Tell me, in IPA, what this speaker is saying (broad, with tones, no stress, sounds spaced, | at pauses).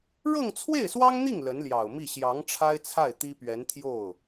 ɻ ɤ˥˧ ŋ t͡sʰ w e˥˩ ɪ̯ s w ɑ˥ ŋ n̪ i˥˩ ŋ l ə˧˥ n l j ɑ˨˩ ʊ̯ m i˥˩ ɕ j ɑ˧˥ ŋ ʈ͡ʂʰ a˥ ɪ̯ t͡sʰ a˥˩ ɪ̯ t̪ i˥ p ɥ ɛ˧˥ n t̪ʰ j o˥˩ ʊ̯